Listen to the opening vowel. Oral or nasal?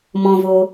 nasal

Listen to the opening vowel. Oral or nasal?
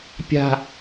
oral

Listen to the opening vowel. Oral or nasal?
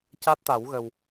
oral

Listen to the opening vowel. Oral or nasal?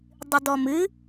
oral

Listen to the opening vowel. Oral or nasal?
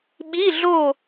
oral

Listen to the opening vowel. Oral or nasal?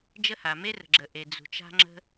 oral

